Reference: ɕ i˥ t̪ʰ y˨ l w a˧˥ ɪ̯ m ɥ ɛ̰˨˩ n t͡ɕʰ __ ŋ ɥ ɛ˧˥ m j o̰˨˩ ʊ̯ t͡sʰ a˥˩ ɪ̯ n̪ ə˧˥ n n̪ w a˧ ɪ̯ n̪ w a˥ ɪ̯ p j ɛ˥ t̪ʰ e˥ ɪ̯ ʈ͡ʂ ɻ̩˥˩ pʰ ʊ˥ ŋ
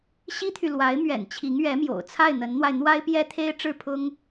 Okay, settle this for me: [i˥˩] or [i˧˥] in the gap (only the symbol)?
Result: i˧˥